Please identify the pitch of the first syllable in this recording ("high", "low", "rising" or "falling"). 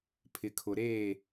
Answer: low